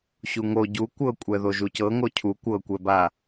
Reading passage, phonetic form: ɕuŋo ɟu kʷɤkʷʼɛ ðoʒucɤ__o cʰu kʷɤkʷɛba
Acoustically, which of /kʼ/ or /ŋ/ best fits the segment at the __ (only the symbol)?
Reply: ŋ